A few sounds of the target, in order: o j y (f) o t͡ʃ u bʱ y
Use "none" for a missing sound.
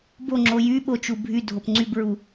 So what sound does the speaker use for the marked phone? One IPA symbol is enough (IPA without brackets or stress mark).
ɓ